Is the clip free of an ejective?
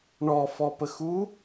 yes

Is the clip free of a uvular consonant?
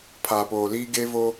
yes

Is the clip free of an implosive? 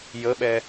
no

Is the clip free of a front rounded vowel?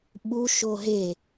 yes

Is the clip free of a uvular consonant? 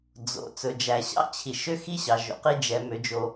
no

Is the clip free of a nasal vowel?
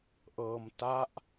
yes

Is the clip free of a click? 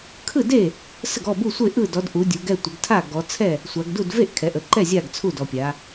no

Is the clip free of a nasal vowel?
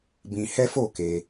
no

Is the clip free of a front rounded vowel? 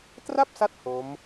yes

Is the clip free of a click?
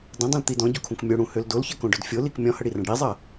yes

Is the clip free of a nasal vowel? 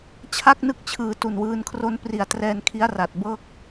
yes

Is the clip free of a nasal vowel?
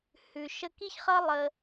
yes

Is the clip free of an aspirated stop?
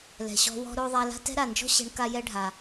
yes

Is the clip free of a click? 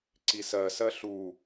no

